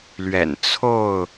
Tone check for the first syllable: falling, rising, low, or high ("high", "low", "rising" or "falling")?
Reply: low